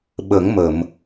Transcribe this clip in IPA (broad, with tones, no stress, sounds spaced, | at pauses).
ɓ ə˨˩˦ ŋ m ə˨˩˨ m